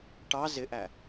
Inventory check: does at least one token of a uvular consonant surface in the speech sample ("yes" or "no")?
no